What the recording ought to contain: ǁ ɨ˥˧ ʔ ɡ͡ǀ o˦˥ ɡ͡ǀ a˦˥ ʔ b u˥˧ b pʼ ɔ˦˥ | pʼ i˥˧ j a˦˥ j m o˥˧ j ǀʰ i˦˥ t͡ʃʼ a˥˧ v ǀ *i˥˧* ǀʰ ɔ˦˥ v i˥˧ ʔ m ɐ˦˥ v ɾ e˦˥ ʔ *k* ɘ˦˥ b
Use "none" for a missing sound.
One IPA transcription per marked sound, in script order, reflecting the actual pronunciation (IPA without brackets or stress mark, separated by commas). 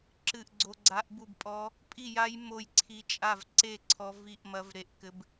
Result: e˥˧, k